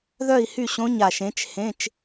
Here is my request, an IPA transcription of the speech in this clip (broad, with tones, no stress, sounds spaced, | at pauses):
ð œ˥˨ i̯ h y˥˨ ɕ õ˧˥˧ ɲ a˨˩ ʃ ẽ˨˥ t͡ʃ h ẽ˧˥˧ t͡ʃ